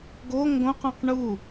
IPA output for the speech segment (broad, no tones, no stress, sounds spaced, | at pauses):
ɡ o ŋ ɡ õ q õ q ɳ u